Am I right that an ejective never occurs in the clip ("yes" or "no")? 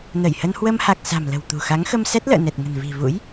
yes